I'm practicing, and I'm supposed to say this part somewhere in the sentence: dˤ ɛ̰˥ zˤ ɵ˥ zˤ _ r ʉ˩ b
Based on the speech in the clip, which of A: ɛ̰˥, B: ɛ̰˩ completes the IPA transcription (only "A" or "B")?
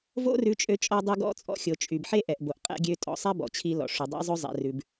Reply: B